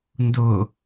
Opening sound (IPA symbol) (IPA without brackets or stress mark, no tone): n